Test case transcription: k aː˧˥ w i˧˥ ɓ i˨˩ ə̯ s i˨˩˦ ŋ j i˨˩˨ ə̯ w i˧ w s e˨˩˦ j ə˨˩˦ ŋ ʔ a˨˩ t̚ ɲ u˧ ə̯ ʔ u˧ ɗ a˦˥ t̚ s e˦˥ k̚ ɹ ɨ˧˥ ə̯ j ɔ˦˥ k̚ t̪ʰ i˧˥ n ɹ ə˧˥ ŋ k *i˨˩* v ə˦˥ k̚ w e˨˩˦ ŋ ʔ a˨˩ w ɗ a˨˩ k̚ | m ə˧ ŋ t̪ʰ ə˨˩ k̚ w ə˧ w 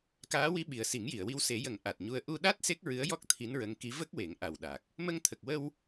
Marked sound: incorrect: i˧˥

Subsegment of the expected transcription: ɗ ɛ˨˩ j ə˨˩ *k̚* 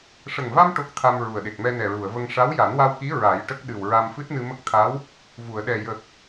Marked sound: correct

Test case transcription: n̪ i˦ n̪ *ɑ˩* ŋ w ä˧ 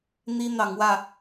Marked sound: incorrect: ɑ˨˦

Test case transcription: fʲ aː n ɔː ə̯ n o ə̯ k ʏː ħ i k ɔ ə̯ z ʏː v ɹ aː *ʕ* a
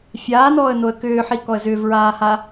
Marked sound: incorrect: h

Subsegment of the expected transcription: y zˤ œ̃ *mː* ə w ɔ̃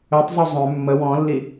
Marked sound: correct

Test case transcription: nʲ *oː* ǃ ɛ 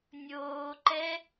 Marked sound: correct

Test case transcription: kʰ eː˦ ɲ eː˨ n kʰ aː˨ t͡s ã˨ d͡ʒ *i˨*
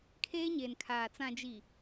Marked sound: correct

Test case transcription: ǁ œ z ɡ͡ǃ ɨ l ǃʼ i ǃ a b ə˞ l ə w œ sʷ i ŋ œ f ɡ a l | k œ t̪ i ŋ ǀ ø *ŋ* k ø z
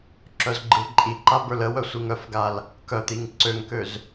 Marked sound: correct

